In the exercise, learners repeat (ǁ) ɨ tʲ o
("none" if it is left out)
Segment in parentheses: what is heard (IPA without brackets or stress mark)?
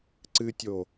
ǀ